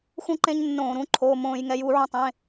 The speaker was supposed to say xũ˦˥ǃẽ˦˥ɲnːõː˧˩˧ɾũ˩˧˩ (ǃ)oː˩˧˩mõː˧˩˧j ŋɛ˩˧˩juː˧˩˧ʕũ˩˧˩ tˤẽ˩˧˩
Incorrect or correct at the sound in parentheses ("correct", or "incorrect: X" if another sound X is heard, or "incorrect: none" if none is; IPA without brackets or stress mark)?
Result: incorrect: ǃʰ